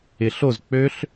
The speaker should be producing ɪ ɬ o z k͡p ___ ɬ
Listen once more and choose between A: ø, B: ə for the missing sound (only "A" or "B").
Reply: A